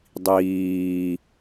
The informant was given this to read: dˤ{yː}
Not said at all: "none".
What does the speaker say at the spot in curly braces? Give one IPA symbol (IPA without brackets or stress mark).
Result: iː